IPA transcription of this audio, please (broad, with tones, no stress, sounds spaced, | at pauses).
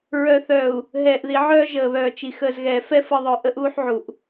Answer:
ɹ œ˨ θ œː˨ u̯ | ɦ ɛː˨ ʔ ð i˨ ʕ œː˦ ʒ əː˨ β œː˨ t͡ʃ i˨ x əː˨ z ɣ ɛː˨ f ɛ˦ f ə˨ ðˤ œ˨ ʔ ə˦ ʔ uː˦ ħ ʕ u˨ ʔ